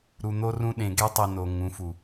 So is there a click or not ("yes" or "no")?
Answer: no